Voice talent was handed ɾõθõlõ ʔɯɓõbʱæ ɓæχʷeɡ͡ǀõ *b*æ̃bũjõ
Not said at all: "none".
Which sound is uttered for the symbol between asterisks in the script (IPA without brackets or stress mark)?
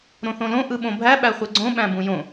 ɓ